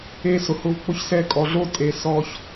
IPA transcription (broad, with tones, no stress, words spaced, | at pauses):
e˧ sʊ˨hʊː˧v k͡pʊ˧çsɛ˧kʼɔ˨ɮo˦ tʼe˧ sɔ˧ç